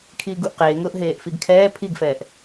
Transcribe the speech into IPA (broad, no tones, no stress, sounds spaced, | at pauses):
kʰ iː ɡ u ʔ q eː ŋ ʊː ʔ ɦ eː ʔ f i ɡ kʰ ɛː pʰ i ɡ f ɛː ʔ